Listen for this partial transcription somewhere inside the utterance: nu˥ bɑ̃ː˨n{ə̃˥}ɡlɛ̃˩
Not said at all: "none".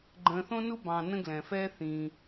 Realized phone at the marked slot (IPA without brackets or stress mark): ə̃˥